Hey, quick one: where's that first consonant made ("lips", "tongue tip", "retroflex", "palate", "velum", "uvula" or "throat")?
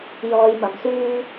palate